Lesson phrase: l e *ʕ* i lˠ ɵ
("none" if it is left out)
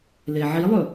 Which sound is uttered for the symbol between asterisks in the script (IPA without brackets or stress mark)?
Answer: ʕ